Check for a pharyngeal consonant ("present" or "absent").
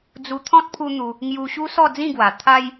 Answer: absent